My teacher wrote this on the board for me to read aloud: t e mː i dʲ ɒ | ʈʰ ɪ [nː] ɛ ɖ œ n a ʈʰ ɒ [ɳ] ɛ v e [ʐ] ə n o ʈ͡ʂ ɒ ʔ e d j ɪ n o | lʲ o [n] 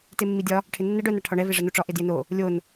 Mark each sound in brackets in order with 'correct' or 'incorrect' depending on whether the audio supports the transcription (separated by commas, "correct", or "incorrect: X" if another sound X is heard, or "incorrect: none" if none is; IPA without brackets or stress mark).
correct, correct, correct, correct